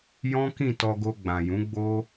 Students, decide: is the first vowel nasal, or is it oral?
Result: nasal